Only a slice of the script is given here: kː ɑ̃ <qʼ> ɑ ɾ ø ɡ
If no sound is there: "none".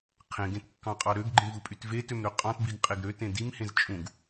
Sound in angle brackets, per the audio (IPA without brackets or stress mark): qʼ